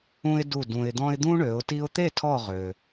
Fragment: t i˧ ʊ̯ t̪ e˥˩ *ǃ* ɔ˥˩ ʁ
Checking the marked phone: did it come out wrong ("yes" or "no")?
yes